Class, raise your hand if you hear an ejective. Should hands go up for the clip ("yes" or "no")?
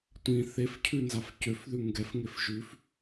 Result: no